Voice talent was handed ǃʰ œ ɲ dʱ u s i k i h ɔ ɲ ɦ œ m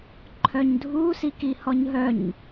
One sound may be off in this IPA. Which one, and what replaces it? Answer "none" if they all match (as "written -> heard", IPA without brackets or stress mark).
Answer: m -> ɲ